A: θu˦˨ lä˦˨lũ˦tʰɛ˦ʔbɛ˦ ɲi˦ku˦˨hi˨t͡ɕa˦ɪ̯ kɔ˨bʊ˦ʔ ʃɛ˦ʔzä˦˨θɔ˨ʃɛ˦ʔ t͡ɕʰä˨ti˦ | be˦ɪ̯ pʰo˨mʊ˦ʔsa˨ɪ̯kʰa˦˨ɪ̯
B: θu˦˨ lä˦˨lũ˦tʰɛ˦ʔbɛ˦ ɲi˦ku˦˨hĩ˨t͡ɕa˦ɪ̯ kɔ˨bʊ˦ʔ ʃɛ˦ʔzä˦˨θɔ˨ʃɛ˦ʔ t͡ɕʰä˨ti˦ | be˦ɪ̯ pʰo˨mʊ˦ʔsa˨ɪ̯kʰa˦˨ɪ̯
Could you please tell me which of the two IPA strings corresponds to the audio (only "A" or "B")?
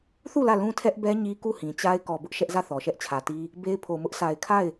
B